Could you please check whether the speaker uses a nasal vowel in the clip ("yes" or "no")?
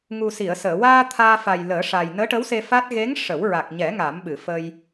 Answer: no